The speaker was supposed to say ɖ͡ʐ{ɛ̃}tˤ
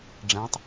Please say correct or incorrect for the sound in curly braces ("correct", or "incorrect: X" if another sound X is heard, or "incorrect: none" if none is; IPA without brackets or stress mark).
correct